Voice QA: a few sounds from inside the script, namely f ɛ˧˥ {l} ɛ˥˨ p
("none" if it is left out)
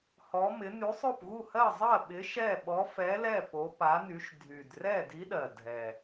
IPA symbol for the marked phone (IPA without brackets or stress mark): l